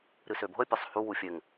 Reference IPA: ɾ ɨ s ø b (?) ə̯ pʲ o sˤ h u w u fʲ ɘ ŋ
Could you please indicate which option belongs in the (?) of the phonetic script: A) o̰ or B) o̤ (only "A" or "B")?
B